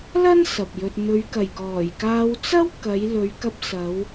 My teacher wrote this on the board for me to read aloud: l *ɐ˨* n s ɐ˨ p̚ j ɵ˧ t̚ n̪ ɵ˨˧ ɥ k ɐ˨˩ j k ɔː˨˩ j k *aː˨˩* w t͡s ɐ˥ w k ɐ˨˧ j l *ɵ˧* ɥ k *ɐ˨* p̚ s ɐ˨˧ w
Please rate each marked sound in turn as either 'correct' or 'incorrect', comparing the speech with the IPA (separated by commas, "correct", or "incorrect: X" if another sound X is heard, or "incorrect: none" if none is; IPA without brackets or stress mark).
incorrect: ɐ˥, incorrect: aː˧, incorrect: ɵ˨˧, incorrect: ɐ˧